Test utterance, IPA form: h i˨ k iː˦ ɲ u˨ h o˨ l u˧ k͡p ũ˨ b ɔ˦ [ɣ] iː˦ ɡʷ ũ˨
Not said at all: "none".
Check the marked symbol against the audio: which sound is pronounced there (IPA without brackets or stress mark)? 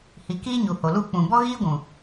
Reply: ɣ